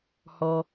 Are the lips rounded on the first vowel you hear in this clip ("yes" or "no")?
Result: yes